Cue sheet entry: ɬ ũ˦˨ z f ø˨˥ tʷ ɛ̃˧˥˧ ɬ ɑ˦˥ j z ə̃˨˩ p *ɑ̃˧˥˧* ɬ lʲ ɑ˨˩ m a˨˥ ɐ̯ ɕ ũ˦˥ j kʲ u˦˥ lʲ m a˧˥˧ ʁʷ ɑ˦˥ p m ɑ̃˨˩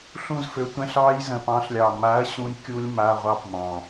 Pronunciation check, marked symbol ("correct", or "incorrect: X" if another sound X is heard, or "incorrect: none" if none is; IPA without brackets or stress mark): incorrect: ɑ̃˨˥